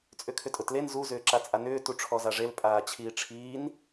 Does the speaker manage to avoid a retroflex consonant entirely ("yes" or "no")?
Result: no